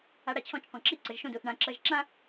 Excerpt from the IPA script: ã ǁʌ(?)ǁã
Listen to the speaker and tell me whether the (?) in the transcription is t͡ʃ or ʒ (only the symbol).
ʒ